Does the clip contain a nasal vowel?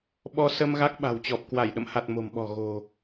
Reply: no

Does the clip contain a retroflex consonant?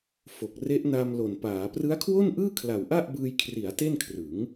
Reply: no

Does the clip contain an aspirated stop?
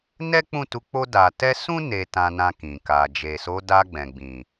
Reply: no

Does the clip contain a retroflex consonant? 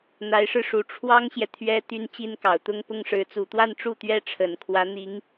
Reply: yes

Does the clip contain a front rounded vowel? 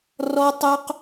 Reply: yes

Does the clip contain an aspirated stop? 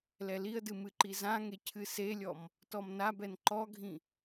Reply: yes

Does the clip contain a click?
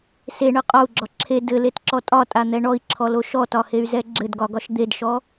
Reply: yes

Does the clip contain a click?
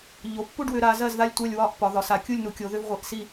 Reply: no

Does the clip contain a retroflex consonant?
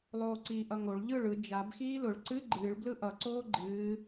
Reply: yes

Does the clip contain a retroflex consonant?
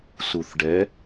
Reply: yes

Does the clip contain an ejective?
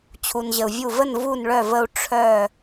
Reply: no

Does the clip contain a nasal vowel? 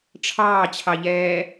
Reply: no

